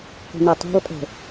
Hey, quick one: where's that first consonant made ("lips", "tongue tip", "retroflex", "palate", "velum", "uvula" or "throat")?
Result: uvula